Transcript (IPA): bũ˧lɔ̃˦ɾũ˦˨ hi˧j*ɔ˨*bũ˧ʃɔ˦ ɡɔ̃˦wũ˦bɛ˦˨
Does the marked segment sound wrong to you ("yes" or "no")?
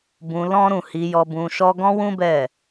yes